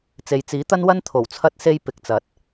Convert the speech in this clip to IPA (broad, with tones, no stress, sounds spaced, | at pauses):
t͡s e˨ j t͡s iː˨˥ t̪ ɐ˥ n w ɐ˥ n t̪ʰ o˨˩ w t͡sʰ ɐ˧ t̚ s e˧ j p ɪ˨˥ k̚ t͡s ɐ˨˥ t̚